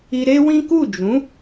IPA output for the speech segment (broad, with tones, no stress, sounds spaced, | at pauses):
i˧ ɾ e˦ w ĩ˦ k u˦˨ d͡ʒ ũ˨˦